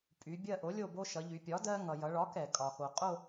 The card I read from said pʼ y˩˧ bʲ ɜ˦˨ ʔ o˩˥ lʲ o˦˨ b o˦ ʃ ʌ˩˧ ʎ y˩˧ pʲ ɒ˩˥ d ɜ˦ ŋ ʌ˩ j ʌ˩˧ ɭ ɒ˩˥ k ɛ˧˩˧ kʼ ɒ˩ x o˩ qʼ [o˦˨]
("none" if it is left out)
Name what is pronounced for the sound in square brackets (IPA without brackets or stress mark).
o˦˨